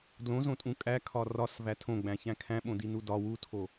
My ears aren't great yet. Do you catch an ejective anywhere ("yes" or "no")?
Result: yes